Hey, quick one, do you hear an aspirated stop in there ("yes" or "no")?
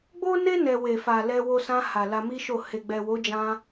no